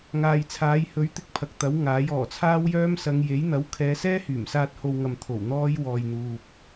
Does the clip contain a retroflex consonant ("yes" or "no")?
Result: no